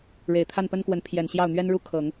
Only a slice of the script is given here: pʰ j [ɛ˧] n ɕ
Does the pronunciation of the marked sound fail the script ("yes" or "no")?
yes